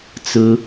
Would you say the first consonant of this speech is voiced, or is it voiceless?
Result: voiceless